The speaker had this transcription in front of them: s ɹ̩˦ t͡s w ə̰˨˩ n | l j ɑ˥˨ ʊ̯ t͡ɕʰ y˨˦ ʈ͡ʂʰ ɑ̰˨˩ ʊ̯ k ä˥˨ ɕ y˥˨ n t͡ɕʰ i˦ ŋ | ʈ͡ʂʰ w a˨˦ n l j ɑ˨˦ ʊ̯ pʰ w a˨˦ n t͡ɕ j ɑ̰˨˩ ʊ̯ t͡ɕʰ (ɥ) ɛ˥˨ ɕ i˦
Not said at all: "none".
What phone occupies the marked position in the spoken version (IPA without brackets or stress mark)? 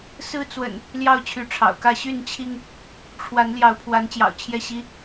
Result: j